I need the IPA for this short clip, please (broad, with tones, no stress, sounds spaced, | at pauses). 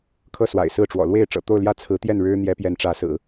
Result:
kʰ ɤ˥˩ s w a̰˨˩ ɪ̯ s ɹ̩˥˩ ʈ͡ʂ w ɔ̰˨˩ l w e˥˩ ɪ̯ ʈ͡ʂ ɤ̰˨˩ t̪ o˥˧ ʊ̯ l j ä˥˩ t͡sʰ ɹ̩˧˥ t̪ j ɛ˥˩ n ɻ ɻ̩˥ n̪ j ɛ˧˥ p j ɛ˧˥ n ʈ͡ʂ ä˧˥ s ɹ̩˨˩˦